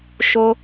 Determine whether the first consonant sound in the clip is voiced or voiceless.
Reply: voiceless